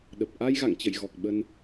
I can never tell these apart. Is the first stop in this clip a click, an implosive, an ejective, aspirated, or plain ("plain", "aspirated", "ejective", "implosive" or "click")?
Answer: implosive